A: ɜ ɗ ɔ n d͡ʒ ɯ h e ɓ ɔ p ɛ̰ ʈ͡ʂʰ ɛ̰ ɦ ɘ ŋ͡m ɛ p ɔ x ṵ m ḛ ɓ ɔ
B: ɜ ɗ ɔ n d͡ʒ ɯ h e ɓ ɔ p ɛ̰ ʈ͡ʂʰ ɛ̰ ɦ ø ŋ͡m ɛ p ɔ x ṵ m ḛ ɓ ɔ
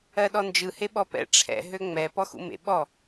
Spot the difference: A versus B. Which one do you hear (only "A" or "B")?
B